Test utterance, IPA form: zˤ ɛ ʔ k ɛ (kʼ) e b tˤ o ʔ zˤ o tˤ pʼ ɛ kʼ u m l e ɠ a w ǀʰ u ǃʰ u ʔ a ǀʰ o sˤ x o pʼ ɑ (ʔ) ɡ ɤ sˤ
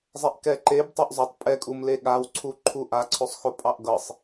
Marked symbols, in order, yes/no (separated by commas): no, yes